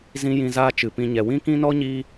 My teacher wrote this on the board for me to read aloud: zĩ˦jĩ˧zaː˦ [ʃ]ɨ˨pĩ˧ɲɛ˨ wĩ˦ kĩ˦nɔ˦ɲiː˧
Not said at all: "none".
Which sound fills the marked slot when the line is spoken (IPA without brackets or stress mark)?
t͡ʃ